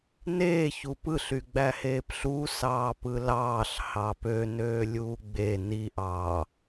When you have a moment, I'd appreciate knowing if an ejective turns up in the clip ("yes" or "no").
no